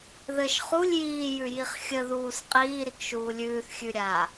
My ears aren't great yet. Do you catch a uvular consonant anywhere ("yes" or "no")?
yes